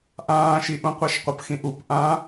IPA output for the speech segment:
ʔ ãː ʃ i ʔ ũ qʷ a ʃ qʷ ə p x ĩ ʔ u p ʔ ã

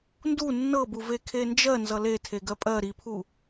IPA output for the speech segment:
n d u nː ɤ b u v e kʰ e n d͡ʒ ɜ n z ʌ l e tʰ e ɡ ɜ pʼ ɜ ɾ i pʰ u

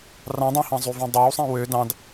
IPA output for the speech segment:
r ɑ̃ dˤ ɑ̃ h ɑ̃ zˤ y v õ dˤ ɑ w sˤ ẽ w ø d ɑ̃ d

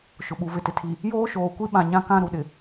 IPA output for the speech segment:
ʃ ʊ˨ ɓ u˨ v ɪ˨ t ɪ˨ tʰ i˨ | j oː˦ ʃ oː˨ kʷ i˦ ɓ ã˨ ɲ ã˦ k ã˦ ɾ u˨ ɗ ɪ˨

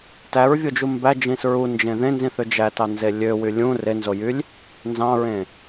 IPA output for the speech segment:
t æ ɹ vʲ o d͡ʒ u m b æ d͡ʒ ĩ s ɹ u n d͡ʒ ẽ ð ẽ n z ĩ θ ø d͡ʒ æ t ɑ n z e lʲ ø w y lʲ ũ r e n z o j y lʲ | n z ɑ̃ ɹ ẽ

